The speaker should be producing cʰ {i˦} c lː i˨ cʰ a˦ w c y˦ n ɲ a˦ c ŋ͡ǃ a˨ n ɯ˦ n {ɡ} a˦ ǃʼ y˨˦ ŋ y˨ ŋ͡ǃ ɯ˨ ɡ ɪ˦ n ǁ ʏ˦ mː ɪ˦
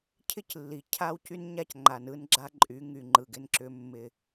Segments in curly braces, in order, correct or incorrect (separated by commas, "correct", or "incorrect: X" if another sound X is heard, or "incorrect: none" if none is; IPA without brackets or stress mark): incorrect: ɪ˦, incorrect: ɡ͡ǁ